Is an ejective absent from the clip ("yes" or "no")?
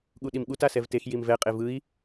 no